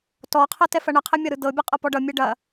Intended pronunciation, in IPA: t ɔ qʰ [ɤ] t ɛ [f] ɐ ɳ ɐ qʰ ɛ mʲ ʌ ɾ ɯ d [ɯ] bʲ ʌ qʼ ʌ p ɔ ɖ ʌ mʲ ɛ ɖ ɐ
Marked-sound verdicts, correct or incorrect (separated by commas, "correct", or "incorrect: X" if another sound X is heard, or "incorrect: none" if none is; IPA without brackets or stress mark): correct, correct, incorrect: ɤ